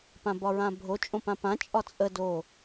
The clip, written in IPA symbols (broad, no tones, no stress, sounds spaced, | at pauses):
p ã b ɒ ɹ ã bʱ o t͡ʃʼ õ p ã p ã t͡ʃʼ ɒ t͡sʼ ə d o